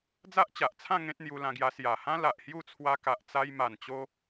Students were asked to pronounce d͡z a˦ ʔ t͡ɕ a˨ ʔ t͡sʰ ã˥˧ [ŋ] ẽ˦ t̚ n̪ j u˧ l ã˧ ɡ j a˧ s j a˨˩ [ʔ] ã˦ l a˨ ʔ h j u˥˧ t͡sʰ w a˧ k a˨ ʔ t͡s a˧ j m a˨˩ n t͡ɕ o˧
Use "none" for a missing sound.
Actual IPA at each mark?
ŋ, h

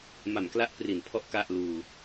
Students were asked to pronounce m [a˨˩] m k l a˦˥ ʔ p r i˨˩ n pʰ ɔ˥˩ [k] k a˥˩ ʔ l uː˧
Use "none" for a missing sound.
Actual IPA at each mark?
a˨˩, ʔ

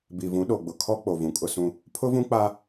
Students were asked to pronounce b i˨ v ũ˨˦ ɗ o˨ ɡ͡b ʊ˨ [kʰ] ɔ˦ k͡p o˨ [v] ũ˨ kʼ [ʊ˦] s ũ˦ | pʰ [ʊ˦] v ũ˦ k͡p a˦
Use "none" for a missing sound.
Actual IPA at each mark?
kʰ, v, ʊ˦, ʊ˦

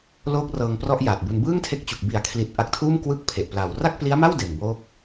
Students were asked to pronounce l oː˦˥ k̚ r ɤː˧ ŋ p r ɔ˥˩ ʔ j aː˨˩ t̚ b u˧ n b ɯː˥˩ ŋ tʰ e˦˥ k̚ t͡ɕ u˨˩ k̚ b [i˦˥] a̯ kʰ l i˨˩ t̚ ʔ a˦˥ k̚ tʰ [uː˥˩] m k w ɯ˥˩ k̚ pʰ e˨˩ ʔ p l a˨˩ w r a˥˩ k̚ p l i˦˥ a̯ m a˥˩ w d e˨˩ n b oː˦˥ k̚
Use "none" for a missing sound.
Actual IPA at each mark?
i˨˩, uː˥˩

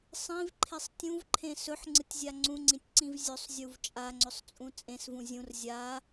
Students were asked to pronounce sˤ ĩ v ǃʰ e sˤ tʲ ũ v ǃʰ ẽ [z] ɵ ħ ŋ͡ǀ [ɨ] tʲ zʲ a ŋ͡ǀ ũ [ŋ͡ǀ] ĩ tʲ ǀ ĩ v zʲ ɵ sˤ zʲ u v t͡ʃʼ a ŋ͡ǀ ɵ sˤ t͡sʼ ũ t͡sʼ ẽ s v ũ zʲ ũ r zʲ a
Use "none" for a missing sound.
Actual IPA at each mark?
s, ɨ, ŋ͡ǀ

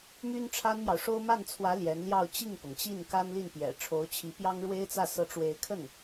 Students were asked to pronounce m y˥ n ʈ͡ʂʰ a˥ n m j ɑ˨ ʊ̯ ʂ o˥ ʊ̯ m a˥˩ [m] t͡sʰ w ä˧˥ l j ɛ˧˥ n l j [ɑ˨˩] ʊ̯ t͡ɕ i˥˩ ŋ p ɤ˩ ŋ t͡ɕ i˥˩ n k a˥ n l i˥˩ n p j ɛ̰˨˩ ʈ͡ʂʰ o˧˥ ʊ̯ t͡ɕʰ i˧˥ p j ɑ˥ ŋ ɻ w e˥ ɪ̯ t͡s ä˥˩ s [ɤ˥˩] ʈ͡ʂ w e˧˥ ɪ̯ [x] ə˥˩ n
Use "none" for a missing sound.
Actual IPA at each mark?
n, ɑ˥˧, ɤ˧˥, kʰ

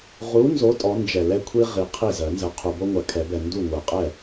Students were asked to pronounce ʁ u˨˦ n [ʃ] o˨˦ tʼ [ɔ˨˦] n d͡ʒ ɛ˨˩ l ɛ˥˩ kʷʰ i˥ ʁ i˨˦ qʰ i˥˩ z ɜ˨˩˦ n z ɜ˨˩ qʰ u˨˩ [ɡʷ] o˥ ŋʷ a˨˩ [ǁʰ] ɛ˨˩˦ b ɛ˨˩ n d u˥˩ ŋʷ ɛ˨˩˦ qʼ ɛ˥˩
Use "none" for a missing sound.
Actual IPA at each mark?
z, ɔ˨˦, b, kʰ

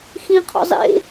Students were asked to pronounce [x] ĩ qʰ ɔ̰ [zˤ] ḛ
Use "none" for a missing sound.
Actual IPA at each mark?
x, zˤ

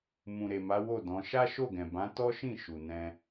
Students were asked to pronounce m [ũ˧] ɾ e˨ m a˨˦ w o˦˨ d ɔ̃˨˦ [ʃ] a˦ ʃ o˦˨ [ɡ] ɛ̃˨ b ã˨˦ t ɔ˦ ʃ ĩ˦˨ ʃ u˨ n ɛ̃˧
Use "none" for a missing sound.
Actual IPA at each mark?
ũ˨, ʃ, ɡ

